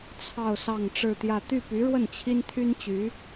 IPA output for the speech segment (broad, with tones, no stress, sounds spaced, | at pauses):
t͡sʰ ɑ˥˧ ʊ̯ s ɑ˥˧ ŋ ʈ͡ʂ ɻ̩˥˧ t̪ j ä˥˧ t̪ y˥˩ p y˧˥ ɻ w ə˥˩ n t͡ɕʰ i˥ n t̪ʰ y˥ n t͡ɕ y˧˥